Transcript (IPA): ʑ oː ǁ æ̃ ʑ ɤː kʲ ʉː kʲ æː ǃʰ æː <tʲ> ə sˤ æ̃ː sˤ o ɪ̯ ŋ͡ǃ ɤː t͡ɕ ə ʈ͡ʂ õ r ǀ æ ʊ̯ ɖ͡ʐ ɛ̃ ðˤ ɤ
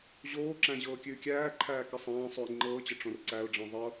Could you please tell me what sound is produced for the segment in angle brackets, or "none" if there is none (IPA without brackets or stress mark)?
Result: k